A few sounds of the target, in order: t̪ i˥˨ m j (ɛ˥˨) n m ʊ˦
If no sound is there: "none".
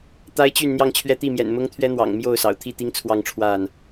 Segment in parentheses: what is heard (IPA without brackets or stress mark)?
ɛ̰˨˩